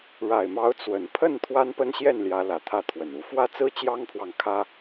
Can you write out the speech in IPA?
ɻ a˨˩ ɪ̯ m ɑ˨˦ ʊ̯ t͡s w ə˨˩ n pʰ ə˥˨ n t̪ʰ w a˦ n p ə˦ n ɕ j ɛ˥˨ n l j ä˨˦ l ä˨˩ t̪ʰ ä˥˨ t̪ʰ w ə˨˩ n u˨˦ f w ä˦ t͡s ɹ̩˦ t͡ɕ j ɑ˦ ŋ pʰ w ɑ˨ ŋ kʰ ä˦

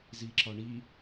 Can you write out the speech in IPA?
z i ǁ ɒ ɳ i

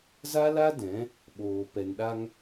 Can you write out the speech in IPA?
z a˦ l a˦ d ɛ̃˨˦ | ɓ oː˨ p ɛ˨ n ɗ a˧ ŋ

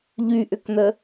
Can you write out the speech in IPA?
ʎ y ʔ ʏ k n̪ ə

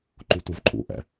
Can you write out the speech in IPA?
ǃ u t u v ǃʼ ṵ ʔ ɛ̰

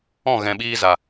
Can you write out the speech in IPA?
ɔ̃˦˨ ɣ ɛ̃˨ ɓ iː˧ z a˨

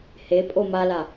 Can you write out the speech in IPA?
h e pʼ o m a l a

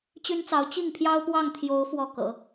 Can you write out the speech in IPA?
t͡ɕ y˥ n t͡s ɑ˧˥ ʊ̯ t͡ɕ i˥˩ ŋ pʰ j ɑ˥ ʊ̯ p w ɑ˥˩ ŋ t̪ʰ j o˧˥ ʊ̯ f w ɔ˥˩ k ɤ̰˨˩˦

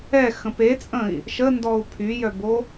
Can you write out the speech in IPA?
ɛ x ə̃ p e t͡sʼ ə̃ i̯ | ʃ ə n d ɔ u̯ pʰ y j œ b o

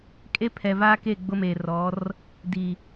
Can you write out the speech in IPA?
kʼ e˦ pʰ ɛ˨ v aː˦ k e˦˨ ɡ͡b ʊ˦ m eː˨ r ɔ˨˦ r | d i˨

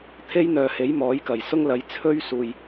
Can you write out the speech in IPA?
t̪ʰ e˥ j n̪ œː˨ h e˨˥ j m ɔː˨˥ j k ɐ˨˩ j s ʊ˥ ŋ l ɐ˨˧ j t͡sʰ ɵ˥ ɥ s uː˨ j

